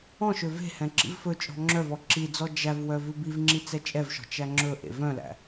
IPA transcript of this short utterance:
ɔ̃ ʃ ø v e̤ h ɛ̃ ǁ ḭ v f ɵ t͡ʃʼ ɔ̤ ŋ͡ǁ œ v ɔ ǁ i d͡z ɔ d͡ʒ æ v w œ v ʉ b i v ŋ͡ǁ i t͡s ɛ t͡ʃʼ ɛ v ʃ ɔ̤ t͡ʃ æ ŋ͡ǁ ɵ ʔ ḛ v œ̃ l æ̰

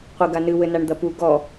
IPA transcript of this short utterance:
qʷ i ɡ a n ɨ w ɘ n a ɳ d̪ ɐ p u ɡ ɔ

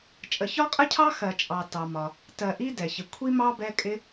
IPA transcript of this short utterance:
t͡ʃʼ ə˨ ç ɒ˥ qʼ ə˥ cʰ ɑ˥ x ɜ˨ t͡ʃʼ ɑ˨ t ɑ˩ m ɒ˩ | t ɜ˨ ʔ i˦ d ɛ˩ ç ɪ˨ kʷʰ i˥ m ɑ˥ b ɛ˦ kʼ ɪ˦

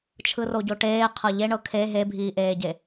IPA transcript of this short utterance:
t͡ʃʰ ɯ r o ɟ o ʈ eː qʰ ɤ ʎ e ɳ ɤ kʰ e ɦ e bʱ iː ʔ eː ɟ e

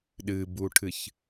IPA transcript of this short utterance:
ɗ ɨ b u ʈʰ ɨ ç

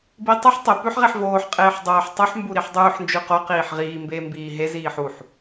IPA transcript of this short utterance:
b i tˤ ɵ ħ tˤ e p ʉ ħ ʁ e ħ v oː ħ qʼ eː ħ dˤ oː ħ tˤ ʉ ħ m b u ɾ i ħ dˤ ʉː ħ n d͡ʒ ʉ q o q iː ħ ʁ iː m b eː m b iː ɦ e z iː ħ u ħ

